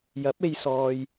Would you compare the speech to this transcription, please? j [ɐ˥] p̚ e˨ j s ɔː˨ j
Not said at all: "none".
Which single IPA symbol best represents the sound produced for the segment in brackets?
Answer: ɐ˨˥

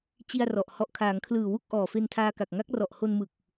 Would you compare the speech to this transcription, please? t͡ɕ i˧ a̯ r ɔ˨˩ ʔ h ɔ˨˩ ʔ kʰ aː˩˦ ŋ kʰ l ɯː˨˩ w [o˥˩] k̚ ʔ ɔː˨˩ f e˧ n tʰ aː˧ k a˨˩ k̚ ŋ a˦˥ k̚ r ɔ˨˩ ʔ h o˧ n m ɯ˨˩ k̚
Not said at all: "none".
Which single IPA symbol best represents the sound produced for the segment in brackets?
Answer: u˥˩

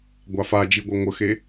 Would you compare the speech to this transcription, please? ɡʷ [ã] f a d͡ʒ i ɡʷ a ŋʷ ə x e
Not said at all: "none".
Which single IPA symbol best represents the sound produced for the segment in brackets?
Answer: a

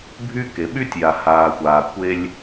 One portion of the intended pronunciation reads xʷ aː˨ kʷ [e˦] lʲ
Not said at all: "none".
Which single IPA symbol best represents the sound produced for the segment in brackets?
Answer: e˦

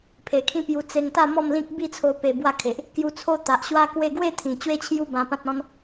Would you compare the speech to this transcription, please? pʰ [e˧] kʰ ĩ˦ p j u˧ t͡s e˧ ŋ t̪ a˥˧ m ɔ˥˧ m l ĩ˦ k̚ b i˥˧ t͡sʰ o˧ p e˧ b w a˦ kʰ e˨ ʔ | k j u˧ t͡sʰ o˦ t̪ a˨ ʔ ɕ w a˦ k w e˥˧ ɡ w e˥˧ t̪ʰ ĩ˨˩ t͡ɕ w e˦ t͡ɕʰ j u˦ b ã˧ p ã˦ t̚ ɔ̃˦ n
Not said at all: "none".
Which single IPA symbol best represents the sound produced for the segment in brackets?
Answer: e˨˩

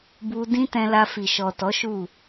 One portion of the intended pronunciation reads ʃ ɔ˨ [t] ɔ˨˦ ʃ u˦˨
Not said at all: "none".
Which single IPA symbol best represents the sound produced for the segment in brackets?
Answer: t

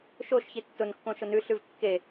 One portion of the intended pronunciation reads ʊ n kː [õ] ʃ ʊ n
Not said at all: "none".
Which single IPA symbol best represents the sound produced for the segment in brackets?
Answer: õ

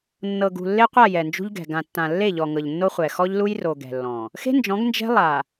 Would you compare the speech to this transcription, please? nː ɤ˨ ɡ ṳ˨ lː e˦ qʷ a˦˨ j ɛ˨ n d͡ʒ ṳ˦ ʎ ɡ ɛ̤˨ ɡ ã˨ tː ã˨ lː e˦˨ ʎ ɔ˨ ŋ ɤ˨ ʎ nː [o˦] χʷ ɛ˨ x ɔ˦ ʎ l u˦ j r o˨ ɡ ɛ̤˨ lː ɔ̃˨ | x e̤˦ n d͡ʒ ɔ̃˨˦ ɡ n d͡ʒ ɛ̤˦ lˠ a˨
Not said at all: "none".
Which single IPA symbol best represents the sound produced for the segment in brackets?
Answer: o˦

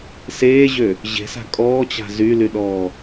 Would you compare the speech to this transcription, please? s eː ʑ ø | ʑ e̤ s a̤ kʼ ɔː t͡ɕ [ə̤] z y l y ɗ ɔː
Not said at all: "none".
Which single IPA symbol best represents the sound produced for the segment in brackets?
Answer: a̤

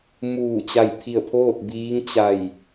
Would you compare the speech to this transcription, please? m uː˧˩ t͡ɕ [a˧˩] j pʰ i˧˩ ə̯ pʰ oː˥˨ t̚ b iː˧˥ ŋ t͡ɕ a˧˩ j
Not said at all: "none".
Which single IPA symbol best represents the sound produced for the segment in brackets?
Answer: a˧˩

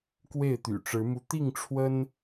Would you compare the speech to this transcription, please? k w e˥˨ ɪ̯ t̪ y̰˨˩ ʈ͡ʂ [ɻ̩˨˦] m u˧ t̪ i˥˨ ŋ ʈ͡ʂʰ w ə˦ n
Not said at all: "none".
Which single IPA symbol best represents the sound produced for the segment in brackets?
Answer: ɻ̩˨˦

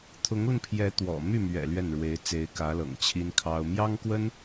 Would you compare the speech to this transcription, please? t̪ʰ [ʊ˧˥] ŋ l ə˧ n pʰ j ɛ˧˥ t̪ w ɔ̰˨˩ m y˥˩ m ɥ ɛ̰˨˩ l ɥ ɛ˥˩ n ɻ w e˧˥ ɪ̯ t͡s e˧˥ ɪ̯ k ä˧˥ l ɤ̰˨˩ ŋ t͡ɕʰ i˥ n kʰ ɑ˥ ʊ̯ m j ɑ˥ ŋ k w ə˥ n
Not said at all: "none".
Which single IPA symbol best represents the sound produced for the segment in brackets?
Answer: ʊ˧˥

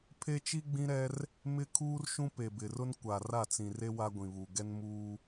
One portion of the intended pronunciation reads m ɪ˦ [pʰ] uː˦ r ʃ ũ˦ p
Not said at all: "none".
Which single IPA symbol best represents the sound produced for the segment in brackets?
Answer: kʰ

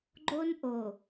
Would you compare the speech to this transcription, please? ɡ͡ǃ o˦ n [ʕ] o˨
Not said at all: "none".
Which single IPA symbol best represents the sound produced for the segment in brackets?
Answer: ʔ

